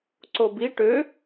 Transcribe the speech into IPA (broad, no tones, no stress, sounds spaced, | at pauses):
ǀ o b i ʈ ø